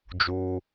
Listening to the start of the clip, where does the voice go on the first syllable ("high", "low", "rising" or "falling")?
high